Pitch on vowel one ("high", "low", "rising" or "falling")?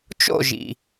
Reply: falling